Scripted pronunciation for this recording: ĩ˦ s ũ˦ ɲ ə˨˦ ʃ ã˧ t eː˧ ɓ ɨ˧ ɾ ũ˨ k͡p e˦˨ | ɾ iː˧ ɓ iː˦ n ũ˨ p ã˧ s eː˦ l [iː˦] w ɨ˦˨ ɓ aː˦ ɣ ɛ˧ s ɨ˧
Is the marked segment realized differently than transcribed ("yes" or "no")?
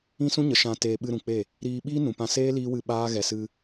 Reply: no